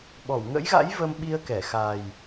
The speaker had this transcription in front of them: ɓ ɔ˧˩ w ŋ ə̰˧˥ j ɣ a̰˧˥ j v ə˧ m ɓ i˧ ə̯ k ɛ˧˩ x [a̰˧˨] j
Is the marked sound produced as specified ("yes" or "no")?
no